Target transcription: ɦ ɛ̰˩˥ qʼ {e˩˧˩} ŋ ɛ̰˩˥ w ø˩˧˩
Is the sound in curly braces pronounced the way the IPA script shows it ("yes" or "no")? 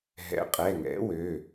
no